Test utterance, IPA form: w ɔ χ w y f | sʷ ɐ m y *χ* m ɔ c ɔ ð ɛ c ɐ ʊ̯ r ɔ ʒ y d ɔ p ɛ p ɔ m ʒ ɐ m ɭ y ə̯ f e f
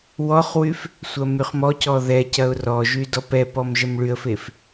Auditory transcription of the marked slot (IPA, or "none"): χ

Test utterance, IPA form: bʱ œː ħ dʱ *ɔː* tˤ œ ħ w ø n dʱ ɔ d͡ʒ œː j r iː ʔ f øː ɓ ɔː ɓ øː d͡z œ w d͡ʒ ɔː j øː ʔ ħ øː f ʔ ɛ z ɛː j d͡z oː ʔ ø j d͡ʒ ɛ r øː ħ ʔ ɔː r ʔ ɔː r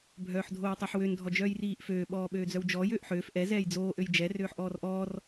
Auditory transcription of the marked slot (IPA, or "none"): oː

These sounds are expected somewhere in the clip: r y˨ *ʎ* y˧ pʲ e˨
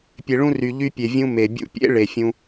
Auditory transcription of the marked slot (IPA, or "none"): ʎ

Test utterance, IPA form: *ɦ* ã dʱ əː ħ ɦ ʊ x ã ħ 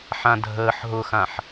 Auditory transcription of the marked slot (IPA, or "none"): ħ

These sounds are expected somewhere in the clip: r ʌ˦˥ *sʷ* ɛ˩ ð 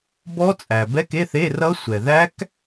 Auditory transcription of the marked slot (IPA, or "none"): sʷ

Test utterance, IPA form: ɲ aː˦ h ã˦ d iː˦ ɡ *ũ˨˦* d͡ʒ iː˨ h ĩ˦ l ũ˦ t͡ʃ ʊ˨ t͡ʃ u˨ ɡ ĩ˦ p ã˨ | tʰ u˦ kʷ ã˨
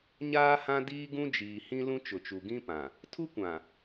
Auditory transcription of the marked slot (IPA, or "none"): ũ˦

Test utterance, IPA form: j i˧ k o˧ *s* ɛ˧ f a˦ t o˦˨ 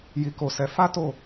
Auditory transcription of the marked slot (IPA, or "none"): s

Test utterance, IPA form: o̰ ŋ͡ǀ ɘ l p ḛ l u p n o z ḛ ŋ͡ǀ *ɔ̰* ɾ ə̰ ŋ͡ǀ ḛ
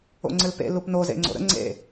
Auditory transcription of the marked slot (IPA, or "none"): o̰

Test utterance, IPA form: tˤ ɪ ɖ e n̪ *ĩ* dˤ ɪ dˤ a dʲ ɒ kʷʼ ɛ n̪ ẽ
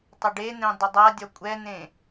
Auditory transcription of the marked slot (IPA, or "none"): ẽ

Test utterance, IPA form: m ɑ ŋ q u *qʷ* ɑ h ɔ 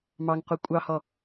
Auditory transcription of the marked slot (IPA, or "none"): kʷʼ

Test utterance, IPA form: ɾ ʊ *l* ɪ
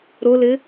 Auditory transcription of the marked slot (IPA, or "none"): l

